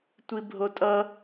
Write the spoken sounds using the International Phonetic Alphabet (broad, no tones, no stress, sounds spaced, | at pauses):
tʷ i bʱ o tʼ ʌ